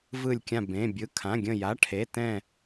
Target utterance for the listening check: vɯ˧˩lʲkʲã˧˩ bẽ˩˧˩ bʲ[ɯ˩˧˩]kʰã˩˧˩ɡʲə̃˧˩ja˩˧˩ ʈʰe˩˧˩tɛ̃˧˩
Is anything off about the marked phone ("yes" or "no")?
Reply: no